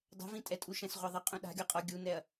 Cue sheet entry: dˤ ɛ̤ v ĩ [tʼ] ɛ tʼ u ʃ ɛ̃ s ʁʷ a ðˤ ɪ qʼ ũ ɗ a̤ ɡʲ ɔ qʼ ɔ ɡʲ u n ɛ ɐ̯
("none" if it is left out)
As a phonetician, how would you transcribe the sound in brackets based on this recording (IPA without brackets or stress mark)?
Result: tʼ